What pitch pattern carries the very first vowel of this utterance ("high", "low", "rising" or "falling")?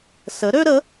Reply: rising